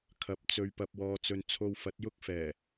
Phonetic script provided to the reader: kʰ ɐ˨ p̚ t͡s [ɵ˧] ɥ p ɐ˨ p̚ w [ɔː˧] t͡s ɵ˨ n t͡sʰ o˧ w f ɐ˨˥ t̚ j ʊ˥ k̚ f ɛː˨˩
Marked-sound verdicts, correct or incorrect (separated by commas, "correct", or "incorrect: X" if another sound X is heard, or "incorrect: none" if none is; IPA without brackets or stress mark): incorrect: ɵ˨, incorrect: ɔː˨